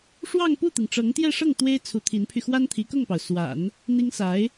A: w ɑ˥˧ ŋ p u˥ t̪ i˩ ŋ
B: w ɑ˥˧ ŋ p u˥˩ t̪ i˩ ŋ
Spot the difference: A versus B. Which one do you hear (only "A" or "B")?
B